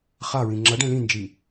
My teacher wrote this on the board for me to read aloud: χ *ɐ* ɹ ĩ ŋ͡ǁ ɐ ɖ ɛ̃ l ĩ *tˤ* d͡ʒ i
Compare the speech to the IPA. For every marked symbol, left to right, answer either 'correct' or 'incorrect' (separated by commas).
incorrect, incorrect